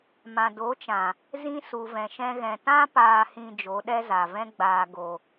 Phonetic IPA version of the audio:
m ã˨ d o˨˦ t͡ʃ ã˨ | z ĩ˧ s u˨ v ɛ̃˨ ʃ ɛ̃˧ ɣ ɛ̃˨ t ã˧ p aː˨ h ĩ˨ d͡ʒ o˨˦ ɗ ɛ˦ z a˨ v ɛ̃˦ ɡ͡b aː˨ ɡ o˨

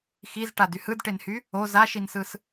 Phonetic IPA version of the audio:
x i z ʈ a d y h ɯ d ʈ e n h y | o z a ʃ i n s ɯ s

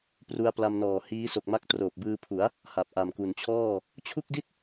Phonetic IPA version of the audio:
p r u˧ a̯ p l a˧ m n ɔː˨˩ h iː˦˥ s o˨˩ k̚ m a˦˥ k̚ t r oː˨˩ p̚ b ɯː˧ pʰ u˩˦ a̯ | h a˨˩ p̚ ʔ a˨˩ m k u˨˩ n t͡ɕʰ ɔː˥˩ | t͡ɕʰ u˥˩ k̚ d i˥˩ t̚

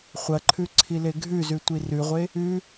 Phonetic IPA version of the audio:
χʷ ɐ ǃʰ ʉ ǀʰ i l e ɡʱ ʉ z ʉ tʷ i r ʉ ʁʷ e | ʉ

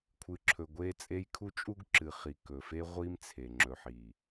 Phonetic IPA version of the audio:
kʷʰ ɨ˨˦ ǁʰ ɵ˨ ɡʷ e˦ t͡sʼ e˦ j kʰ u˦ t͡ʃʼ u˦ ɡ ǁ ɨ˨ χ i˨ k ɵ˨ f e˦ ʁʷ i˦ m t͡sʰ e˨ ŋ͡ǁ ɵ˨ ħ i˨

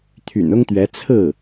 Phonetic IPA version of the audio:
t̪ʰ y̰˨˩ n ʊ˥ ŋ t̪ ɥ ɛ˧˥ t͡sʰ ɹ̩˥˩

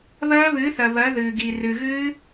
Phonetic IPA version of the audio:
β ɜː˦˥ β ɨː˩˥ θ ɜ˩ β ɜ˩˥ ð ɨː˩ ɡ i˩ r ɨ˩ ɣ ɨː˦˥

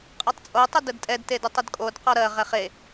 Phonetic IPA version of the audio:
qʼ ɜ tˤ t͡sʼ o tˤ ʊ d ə d tʼ ɛ d t e d ɯ tˤ ə d kʼ o d q ɔ ɾ ɜ ʁ ɛ χ e

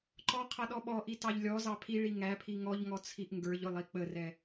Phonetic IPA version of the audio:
ǃ ɔ qʰ ʌ ɗ ɔ ɓ ɔ ʔ i t ɑ ʎ lʲ ɔ z ɑ pʰ i ɭ i ŋ æ pʰ i ŋ ɔ ʎ ŋ ɔ t͡sʰ i ʔ ŋ ɡ ə˞ ʎ ʊ lˠ i k͡p ə r ɛ

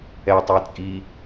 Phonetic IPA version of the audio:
ɛ tˤ e t͡sʼ i

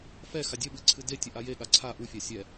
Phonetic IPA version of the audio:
f ɛ x a dʲ ə ɓ ɨ ǀʰ ɨ d e tʲ ə ʔ a j e ɠ a ǀʰ a ʔ u fʲ a sʲ ɛ

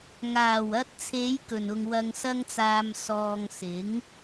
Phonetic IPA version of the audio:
ŋ aː˨˩ w ɐ˧ t̚ t͡sʰ e˨˧ j k ɵ˨˩ n ʊ˧ ŋ w ɐ˧ ŋ s ɐ˥ ŋ t͡s aː˧ m s ɔː˨ ŋ s ɪ˨˥ ŋ

